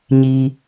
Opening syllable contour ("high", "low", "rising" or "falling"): low